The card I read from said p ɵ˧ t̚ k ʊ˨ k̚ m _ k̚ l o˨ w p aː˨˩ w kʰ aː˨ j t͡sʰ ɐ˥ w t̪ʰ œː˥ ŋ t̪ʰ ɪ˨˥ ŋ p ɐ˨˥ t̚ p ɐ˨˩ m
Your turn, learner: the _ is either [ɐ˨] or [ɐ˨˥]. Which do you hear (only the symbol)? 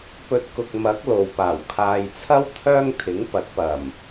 ɐ˨˥